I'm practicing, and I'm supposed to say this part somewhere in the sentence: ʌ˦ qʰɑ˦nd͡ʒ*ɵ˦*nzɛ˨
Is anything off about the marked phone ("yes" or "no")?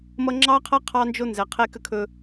yes